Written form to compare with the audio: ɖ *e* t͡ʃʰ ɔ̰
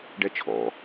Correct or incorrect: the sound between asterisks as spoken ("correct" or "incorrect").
incorrect